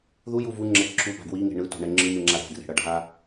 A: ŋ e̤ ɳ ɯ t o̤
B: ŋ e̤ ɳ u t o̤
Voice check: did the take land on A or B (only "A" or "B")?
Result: A